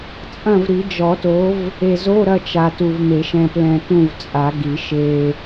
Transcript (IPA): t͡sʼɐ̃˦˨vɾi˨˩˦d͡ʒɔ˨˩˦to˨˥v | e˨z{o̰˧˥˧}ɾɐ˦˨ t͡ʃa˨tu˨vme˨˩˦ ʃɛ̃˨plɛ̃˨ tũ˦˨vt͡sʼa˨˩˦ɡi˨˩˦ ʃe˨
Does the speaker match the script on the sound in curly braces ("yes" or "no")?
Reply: no